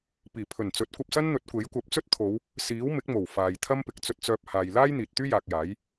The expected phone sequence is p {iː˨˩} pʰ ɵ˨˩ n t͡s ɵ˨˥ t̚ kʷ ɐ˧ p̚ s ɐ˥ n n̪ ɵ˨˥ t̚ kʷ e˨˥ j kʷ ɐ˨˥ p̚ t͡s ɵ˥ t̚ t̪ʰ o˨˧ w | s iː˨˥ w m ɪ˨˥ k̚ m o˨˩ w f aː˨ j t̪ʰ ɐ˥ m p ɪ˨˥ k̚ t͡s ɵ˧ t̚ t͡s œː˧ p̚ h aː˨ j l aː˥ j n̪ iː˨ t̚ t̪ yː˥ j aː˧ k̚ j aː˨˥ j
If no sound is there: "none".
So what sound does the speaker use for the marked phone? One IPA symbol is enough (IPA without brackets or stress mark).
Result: iː˨˩